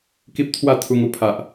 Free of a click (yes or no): yes